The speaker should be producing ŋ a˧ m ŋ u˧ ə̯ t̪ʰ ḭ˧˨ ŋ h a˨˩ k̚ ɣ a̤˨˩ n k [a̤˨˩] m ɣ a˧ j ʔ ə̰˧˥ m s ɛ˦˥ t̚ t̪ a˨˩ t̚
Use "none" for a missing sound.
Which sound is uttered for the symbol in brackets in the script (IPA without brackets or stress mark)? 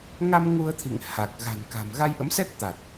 a̤˨˩